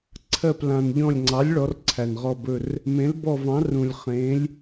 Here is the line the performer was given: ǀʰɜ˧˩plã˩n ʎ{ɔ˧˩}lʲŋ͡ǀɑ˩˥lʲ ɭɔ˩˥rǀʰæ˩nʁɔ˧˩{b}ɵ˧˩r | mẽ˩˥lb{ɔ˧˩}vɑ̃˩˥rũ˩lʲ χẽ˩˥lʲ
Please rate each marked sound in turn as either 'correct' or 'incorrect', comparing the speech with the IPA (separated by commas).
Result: incorrect, correct, correct